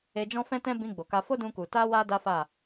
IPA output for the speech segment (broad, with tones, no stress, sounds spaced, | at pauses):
e˧ d͡ʒ ɔ̃˦ f ɛ̃˦ t ɛ̃˦ b ĩ˧ ɡ͡b o˨ k a˧ f o˦ d ũ˧ k u˨ t a˧ w a˧ d a˦ f a˦˨